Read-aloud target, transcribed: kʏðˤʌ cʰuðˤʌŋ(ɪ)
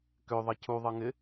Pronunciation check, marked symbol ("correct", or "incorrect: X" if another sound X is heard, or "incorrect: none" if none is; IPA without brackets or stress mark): correct